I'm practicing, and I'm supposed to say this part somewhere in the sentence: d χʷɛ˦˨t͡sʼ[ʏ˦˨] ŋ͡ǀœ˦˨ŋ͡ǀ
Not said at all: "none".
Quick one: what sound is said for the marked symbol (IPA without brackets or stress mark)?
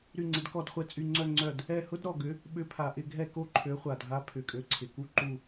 y˦˨